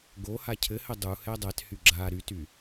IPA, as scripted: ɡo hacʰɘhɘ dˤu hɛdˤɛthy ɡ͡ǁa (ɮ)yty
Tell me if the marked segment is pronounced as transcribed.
no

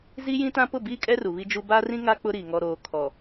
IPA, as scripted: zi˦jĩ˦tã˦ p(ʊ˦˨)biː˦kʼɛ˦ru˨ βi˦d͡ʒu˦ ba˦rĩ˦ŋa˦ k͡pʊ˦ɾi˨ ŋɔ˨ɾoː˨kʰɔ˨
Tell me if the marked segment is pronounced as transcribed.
yes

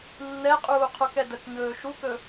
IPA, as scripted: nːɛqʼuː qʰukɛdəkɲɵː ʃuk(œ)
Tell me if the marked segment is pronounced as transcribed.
no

